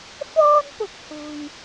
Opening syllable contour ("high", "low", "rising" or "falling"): high